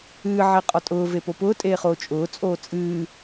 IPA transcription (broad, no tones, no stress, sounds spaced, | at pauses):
ɨː ʕ e qʼ ɒ tʼ ʊː v e p o p ʊː tʼ eː χ oː t͡ʃʼ ʊː t͡sʼ oː t͡sʼ ɨː